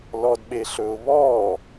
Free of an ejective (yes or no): yes